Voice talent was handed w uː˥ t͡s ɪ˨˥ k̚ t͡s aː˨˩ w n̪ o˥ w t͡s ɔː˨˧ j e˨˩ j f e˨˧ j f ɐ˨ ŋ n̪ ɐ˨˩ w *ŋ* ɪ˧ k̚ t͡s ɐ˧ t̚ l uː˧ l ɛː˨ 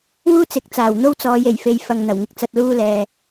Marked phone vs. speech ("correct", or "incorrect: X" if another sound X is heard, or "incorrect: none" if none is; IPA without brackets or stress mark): correct